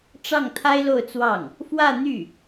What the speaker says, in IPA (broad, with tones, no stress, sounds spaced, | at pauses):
ʈ͡ʂ ɑ˥˩ ŋ t̪ʰ a˥ ɪ̯ l o˥˧ ʊ̯ t͡s w ɑ˥˩ ŋ | f w ä˥˧ n̪ y˥˩